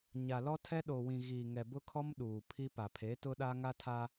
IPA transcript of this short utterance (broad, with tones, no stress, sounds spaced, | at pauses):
ɲ a˨ l ɔ˦ tʰ ɛ˦ ɗ oː˨ w ĩ˨ ɣ iː˨ ŋ ɛ˨ b ʊ˦ kʰ ɔ˦ m ɗ uː˨ pʰ i˦ p a˨ pʰ e˨˦ t ʊ˦ ɗ a˦ ŋ a˦ tʰ aː˦